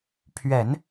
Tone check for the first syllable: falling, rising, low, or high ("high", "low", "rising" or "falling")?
low